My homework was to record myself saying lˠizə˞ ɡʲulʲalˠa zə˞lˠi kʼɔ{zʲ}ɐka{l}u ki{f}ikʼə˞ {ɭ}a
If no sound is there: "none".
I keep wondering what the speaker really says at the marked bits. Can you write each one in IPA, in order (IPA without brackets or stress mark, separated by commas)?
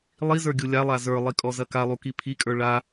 z, lˠ, pʰ, ɭ